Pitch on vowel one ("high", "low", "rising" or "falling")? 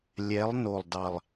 rising